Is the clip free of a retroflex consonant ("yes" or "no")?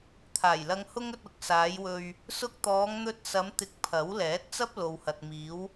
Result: yes